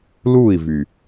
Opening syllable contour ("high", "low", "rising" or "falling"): falling